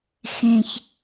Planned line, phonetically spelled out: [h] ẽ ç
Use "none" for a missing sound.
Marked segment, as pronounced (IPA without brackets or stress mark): x